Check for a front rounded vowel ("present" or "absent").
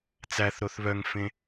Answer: present